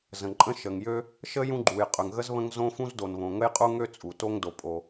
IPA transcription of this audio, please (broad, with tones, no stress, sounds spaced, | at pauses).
z ə̃˩ ǃʼ ə̃˥ ʃ ə˩ ŋ j ø˥ | ʃ ə˥ j ũ˥ ɡ͡ǃ u˩ j qʼ ø˩ ŋ ɣ ə˥ z β ə̃˥ ŋ z õ˥ f ũ˥ z d o˩ n β õ˩ ŋ ə˥ j qʼ u˥ ŋ ø˥ t͡sʼ u˩ t o˥ ŋ d o˩ pʼ o˩